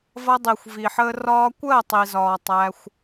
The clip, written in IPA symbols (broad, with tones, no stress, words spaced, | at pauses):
vʌ˧dˤi˨xʷ vi˨ħəː˧ rɒː˧kʷɜ˦˨ tˤi˧zɒː˧ tˤæ˦xʷ